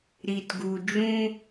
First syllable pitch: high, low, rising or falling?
low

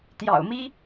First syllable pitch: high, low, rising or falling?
low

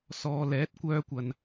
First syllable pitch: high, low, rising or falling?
low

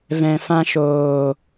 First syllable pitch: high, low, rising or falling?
low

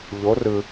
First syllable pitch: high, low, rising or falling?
rising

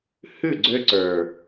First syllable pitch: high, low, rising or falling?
falling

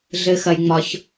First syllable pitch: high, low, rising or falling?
low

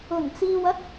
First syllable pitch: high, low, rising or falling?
low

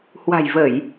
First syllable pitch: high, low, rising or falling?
low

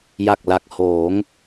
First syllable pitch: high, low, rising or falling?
low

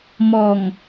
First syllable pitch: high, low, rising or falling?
low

